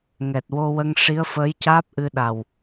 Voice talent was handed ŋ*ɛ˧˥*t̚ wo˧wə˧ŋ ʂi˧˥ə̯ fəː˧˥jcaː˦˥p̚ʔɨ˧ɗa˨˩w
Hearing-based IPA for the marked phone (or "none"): ɛ˨˩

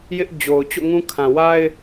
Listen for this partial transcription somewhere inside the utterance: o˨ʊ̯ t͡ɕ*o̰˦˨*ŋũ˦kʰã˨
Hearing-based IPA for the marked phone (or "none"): o̰˦˨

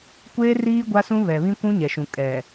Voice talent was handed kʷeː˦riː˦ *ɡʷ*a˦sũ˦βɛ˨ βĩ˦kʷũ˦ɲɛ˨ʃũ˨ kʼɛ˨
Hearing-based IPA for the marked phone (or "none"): ɡʷ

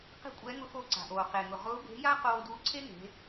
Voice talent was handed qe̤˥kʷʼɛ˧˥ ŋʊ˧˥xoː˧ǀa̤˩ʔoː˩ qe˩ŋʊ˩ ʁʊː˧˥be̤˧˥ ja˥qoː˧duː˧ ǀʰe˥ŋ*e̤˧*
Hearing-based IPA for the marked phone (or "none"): e̤˩˧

